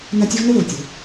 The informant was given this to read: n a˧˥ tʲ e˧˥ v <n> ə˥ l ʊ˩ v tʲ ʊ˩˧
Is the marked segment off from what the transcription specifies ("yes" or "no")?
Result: no